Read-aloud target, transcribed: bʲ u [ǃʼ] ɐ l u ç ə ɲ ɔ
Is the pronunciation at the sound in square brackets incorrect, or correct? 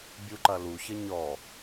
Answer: incorrect